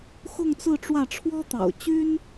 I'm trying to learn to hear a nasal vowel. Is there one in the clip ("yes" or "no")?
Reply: no